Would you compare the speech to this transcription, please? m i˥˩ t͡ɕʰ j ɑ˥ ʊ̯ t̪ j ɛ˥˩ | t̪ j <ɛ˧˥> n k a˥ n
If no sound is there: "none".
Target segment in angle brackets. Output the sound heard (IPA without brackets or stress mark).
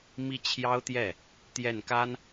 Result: ɛ˥˩